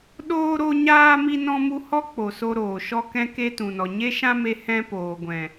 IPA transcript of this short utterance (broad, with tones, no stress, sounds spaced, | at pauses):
ɗ oː˦ ɾ o˦ ɲ aː˦ m i˦ n ɔ̃˦ m u˦ h ɔ˦ k͡p o˨ s o˧ ɾ oː˨ ʃ ɔ˦ k ɛ̃˦ k e˦ t ũ˨ n ɔ˨ ɲ e˦ ʃ ã˦ m e˧ h ɛ̃˦ p oː˨ ɡʷ ɛ̃˨